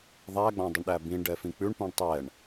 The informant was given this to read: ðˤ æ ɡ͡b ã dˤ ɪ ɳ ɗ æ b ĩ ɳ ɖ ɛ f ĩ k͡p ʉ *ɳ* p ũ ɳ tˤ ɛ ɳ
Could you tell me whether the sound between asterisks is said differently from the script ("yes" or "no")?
no